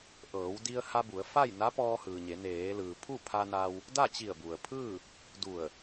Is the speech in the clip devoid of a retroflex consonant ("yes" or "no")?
yes